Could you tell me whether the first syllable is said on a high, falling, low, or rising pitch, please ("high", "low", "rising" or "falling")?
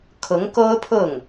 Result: rising